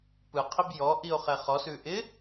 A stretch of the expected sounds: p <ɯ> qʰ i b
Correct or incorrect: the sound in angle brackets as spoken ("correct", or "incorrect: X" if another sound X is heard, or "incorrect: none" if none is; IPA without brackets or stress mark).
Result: correct